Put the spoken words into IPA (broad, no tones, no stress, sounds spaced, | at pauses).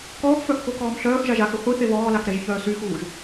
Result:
k ɔː x f œ x k o k ɔː m ɬ œː x ʒ a ʒ a x ə χʷ i θ e β ɔː l a x ɾ ɛ ʒ ç œː s y x uː ʒ